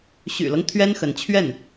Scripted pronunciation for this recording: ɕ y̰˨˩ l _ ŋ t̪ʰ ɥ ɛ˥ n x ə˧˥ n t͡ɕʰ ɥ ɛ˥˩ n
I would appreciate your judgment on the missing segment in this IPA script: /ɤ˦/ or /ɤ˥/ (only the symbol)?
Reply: ɤ˦